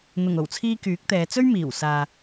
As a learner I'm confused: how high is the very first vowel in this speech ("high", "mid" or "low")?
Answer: high